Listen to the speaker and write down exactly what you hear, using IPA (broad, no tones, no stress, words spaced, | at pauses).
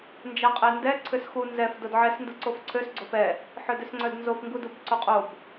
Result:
nd͡ʒaqʼɛndɛ ǀʰʏsxu nzɛf dodʕɛs nduǀofǀʰøs ɡ͡ǀofɛ | ħœdʏsŋ͡ǀœdnzof ŋɡudubǀoqʼob